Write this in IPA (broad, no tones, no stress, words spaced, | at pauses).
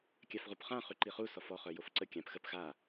kʲafʁupχã χyǃiχu sɔfɔ χœjofǀə kʲãp xəp xa